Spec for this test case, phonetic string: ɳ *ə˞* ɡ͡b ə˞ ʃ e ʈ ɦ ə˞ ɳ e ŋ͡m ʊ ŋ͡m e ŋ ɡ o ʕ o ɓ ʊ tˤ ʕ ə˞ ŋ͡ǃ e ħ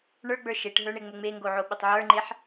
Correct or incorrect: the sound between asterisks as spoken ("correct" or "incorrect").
correct